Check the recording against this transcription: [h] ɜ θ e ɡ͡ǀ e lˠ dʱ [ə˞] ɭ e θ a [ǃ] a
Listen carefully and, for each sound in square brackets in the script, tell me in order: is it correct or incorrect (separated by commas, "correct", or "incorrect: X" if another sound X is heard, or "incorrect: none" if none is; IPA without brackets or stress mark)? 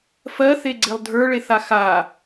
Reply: incorrect: f, correct, incorrect: x